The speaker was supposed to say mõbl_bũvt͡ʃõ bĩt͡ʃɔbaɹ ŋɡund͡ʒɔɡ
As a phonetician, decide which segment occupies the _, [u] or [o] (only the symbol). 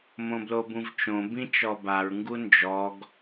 o